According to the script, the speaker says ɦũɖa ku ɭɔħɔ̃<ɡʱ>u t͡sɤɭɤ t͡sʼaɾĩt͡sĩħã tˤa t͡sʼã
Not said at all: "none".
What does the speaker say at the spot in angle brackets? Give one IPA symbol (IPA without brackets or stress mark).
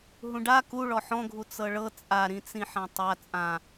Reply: ɡʱ